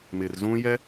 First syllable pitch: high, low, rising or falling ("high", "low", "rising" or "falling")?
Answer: low